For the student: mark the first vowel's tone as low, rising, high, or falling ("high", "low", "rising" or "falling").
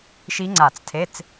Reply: rising